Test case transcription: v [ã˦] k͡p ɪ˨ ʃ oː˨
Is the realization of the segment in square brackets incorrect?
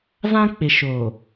no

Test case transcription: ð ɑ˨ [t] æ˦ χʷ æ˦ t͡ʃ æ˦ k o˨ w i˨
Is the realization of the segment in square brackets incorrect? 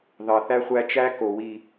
yes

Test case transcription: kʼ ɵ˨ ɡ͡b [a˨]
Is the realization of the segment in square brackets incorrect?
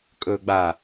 no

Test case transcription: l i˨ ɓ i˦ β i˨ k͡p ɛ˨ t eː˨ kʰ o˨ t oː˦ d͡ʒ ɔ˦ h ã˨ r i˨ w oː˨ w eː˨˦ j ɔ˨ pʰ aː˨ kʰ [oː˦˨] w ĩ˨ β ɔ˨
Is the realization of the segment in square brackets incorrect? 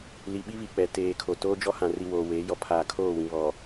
no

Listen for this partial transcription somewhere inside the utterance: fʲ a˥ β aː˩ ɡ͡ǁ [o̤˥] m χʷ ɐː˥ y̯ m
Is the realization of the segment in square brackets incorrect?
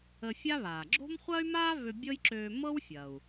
no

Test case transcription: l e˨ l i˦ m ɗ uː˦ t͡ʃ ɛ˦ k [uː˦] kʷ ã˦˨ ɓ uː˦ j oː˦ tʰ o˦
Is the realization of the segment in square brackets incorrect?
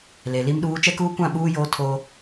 no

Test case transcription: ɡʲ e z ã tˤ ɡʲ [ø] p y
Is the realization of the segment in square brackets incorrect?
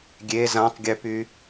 no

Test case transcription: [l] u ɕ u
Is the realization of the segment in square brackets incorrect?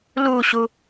no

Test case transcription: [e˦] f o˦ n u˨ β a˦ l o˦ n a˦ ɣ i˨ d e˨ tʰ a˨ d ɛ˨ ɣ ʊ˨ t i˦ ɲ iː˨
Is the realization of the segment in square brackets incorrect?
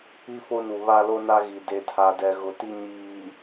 yes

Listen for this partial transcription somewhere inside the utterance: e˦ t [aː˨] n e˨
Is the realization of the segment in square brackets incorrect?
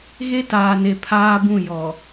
no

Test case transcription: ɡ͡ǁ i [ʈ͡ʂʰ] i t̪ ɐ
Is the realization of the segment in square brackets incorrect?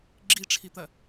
no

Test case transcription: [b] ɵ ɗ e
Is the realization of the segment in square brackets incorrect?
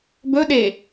no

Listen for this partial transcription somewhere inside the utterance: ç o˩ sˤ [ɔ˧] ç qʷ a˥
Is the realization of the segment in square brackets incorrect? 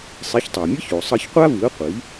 yes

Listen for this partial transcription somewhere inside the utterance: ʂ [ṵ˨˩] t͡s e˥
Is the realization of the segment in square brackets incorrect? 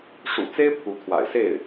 no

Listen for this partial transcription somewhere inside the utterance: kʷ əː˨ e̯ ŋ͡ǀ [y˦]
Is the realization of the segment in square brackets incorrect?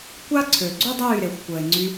yes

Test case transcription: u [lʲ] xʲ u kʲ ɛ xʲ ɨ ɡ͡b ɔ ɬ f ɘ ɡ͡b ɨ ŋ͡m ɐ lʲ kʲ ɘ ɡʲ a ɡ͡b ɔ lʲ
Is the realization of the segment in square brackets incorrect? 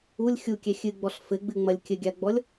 no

